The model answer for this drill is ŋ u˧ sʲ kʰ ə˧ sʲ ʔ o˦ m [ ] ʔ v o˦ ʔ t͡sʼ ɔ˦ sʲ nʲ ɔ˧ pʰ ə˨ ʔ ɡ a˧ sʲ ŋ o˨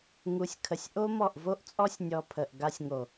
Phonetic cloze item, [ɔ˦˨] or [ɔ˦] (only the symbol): ɔ˦˨